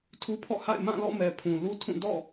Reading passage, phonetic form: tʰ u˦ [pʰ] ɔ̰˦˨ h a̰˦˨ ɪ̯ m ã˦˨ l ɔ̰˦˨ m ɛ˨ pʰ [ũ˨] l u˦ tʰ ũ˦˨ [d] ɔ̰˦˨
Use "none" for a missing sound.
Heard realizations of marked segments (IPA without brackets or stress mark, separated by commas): pʰ, ũ˨, d